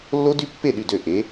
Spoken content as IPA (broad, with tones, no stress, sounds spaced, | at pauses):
lː o˦˥ d y˦˥ pː e˥˩ ɗ y˥˩ d ø˥˩ ʔ e˨˥